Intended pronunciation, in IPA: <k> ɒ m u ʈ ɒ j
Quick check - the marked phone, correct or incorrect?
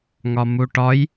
incorrect